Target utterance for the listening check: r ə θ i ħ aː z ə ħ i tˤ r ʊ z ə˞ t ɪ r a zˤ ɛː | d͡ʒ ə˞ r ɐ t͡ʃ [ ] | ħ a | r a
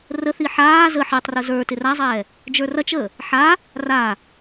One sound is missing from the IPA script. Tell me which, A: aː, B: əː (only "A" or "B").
B